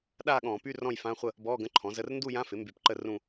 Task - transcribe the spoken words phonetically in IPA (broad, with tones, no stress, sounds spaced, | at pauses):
ɗ aː˥˧ ɠ ɔ̃ː˧˩˧ p y˧˥˧ r ɔ̃˥˧ j f ã˧˥˧ χʷ ə˥˧ | b ɔː˧˥˧ ɡ ə̃˧˥˧ ǃʰ ɔ̃˩˥ z ə˧˥˧ r n d u˥˧ j ã˧˥˧ f ɪ˩˥ m b y˧˩˧ p ǃ ə˥˧ r ũ˥˧